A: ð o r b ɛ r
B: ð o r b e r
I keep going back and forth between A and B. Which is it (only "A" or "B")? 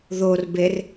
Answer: B